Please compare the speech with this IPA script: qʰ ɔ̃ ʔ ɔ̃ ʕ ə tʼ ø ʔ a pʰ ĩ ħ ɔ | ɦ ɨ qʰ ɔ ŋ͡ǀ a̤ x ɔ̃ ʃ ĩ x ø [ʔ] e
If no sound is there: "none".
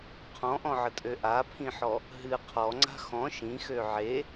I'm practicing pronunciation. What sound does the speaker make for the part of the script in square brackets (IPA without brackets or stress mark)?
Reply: ʕ